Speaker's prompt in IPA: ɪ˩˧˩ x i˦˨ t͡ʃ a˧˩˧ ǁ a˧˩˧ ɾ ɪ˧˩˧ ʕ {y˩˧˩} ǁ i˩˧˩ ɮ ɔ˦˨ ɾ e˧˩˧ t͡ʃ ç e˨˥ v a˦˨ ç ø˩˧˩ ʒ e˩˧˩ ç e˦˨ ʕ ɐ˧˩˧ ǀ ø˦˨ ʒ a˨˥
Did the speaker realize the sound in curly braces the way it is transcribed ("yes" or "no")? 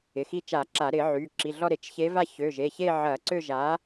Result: yes